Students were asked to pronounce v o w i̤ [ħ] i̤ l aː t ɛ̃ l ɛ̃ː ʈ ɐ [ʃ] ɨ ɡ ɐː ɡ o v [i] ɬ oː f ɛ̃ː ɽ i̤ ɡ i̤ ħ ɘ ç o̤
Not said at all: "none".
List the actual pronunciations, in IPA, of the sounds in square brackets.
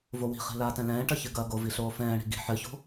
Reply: χ, ç, i

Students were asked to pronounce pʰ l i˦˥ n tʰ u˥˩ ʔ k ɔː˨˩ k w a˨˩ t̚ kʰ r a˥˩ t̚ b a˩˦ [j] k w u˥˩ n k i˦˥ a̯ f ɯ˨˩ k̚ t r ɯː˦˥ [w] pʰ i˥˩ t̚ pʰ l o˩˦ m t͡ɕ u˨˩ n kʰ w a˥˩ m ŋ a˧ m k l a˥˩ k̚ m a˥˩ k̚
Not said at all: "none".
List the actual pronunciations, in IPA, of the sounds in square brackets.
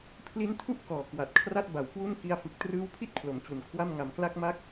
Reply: w, w

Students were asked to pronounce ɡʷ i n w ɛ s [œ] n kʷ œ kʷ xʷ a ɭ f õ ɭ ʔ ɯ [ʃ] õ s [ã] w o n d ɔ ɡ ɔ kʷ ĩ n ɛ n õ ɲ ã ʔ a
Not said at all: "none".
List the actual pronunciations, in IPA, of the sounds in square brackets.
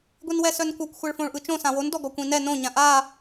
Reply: œ, t͡ʃ, ã

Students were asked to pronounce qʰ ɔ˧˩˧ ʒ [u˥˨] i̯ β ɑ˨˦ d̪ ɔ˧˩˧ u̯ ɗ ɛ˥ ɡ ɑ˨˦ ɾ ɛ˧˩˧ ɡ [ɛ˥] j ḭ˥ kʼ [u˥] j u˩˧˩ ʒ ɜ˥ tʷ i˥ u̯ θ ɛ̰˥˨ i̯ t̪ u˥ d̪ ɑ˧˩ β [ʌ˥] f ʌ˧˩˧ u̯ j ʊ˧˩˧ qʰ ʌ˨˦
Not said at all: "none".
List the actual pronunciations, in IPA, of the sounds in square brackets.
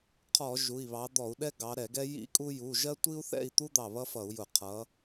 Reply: u˩˧˩, ɛ˥, u˥, ʌ˥

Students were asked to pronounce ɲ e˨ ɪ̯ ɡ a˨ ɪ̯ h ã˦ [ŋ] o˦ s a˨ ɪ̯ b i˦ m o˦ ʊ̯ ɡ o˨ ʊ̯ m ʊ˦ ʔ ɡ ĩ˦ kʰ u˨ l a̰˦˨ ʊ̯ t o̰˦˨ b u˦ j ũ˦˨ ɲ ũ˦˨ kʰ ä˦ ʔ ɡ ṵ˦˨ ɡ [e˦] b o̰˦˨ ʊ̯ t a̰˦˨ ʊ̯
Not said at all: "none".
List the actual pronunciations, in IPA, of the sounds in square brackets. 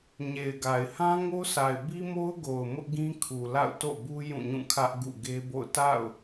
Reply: ŋ, e˦

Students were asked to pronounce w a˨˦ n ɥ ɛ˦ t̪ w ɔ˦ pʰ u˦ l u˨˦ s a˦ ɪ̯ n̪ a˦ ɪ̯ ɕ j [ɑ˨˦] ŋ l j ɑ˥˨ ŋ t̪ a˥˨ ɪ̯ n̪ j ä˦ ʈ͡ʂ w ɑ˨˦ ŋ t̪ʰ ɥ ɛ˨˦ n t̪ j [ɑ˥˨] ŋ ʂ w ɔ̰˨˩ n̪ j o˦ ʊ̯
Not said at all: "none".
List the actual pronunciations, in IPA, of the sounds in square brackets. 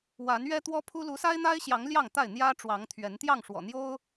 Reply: ɑ˨˦, ɑ˥˨

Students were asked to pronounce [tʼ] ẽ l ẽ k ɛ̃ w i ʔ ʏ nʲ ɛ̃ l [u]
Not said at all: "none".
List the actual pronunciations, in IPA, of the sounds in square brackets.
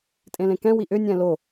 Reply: tʼ, o

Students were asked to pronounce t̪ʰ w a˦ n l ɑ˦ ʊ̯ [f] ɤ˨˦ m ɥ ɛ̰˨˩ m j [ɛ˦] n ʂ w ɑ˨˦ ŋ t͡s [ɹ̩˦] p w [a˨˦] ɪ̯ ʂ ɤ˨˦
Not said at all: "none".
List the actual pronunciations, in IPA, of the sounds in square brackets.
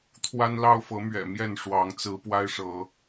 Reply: f, ɛ˥˨, ɹ̩˨˦, a˦

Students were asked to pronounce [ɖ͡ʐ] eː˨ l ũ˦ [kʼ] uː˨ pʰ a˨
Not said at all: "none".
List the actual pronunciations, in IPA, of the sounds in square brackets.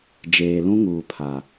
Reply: d͡ʒ, ŋ

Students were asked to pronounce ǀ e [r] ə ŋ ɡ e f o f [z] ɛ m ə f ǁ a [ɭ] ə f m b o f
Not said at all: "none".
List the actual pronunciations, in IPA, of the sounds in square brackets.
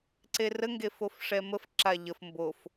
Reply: r, ʂ, ʎ

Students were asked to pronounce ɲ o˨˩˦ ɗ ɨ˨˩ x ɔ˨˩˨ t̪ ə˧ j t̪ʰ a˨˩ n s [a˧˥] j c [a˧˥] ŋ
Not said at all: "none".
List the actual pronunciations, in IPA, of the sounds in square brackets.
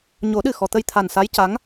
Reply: a˧˥, a˧˥

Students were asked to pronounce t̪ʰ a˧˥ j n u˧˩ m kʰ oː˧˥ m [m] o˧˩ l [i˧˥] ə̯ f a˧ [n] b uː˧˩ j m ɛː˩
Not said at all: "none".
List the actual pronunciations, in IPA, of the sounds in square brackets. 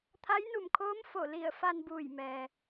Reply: f, i˧˩, n

